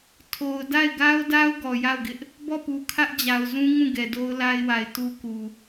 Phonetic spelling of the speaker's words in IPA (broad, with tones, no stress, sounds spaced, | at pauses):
tʰ o˨ ʊ̯ d a˦˨ ɪ̯ ɡ a˦ ʊ̯ d a˦ ʊ̯ ɡ ɔ˨ j a˦˨ ʊ̯ ɡ ɪ˦ ʔ | b ɔ˦˨ p u˨ kʰ ä˦ ʔ d͡ʑ a˨ ʊ̯ z ũ˦ ŋ ũ˦˨ ɡ ɛ˨ d o˦ ʊ̯ l a˦ ɪ̯ w a˨ ɪ̯ t u˦ k u˨